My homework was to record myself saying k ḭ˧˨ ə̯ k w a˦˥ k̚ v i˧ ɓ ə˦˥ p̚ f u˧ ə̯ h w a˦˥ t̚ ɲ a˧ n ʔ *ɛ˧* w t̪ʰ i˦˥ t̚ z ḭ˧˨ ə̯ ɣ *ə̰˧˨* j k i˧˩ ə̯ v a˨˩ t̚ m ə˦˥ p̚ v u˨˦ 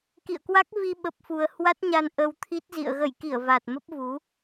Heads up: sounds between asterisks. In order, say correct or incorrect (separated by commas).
incorrect, incorrect